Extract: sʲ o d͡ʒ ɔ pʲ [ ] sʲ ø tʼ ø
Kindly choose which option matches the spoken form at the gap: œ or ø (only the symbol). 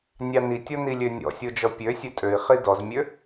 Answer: ø